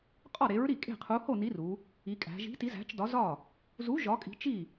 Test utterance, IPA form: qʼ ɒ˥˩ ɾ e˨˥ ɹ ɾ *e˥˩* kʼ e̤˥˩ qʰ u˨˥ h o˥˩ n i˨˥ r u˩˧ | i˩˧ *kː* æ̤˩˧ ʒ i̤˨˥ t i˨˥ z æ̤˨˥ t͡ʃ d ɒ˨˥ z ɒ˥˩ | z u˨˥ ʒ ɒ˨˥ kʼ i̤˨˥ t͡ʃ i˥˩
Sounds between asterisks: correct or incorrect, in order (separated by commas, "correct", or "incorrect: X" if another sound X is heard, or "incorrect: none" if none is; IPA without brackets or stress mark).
incorrect: i˥˩, incorrect: kʼ